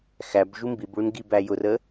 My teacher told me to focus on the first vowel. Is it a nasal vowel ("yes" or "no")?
no